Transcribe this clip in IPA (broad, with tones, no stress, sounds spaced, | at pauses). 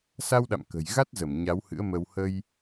s a˧ w ɗ a̰˧˨ m k ə̤˨˩ j ɣ a˦˥ t̚ z ə˧˩ m ɲ a˨˦ w h ɨ̰˧˥ ə̯ m ə˧ w h ə˧ j